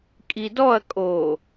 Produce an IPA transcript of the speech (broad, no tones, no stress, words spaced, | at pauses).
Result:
kʼidɔɐ̯ kʼo